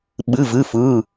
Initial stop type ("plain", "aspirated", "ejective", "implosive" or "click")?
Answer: implosive